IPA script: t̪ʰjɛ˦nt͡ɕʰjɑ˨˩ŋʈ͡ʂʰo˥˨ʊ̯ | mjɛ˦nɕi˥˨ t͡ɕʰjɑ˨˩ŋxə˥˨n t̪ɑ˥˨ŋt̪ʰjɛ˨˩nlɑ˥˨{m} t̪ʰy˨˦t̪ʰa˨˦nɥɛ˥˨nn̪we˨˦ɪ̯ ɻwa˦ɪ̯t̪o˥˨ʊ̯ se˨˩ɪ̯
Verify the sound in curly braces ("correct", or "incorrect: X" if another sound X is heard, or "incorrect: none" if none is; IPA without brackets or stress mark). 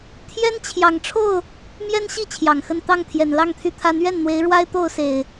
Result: incorrect: ŋ